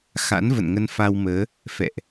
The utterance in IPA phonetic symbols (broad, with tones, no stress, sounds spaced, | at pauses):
x a̰˧˥ n v ə̰˧˨ n ŋ ə˧ n f a˧ w m əː˨˦ | f ɛ̰˧˨ ʔ